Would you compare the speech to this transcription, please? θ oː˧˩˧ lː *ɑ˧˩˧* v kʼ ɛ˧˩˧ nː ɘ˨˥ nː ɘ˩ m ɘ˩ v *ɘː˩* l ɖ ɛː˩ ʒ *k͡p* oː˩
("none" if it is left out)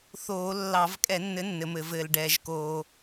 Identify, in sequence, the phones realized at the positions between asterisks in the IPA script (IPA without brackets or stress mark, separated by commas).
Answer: ɑ˧˩˧, ɘː˩, k